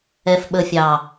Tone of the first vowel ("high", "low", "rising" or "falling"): low